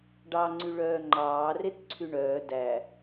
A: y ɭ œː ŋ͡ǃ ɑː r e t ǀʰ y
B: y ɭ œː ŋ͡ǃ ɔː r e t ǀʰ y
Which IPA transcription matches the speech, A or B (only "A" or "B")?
A